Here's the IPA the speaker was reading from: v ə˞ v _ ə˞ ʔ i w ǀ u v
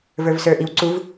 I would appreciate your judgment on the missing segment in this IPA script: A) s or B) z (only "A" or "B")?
A